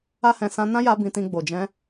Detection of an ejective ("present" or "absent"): absent